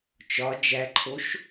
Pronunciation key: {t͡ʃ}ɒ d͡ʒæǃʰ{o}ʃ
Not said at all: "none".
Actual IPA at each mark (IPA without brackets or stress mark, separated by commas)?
t͡ʃ, o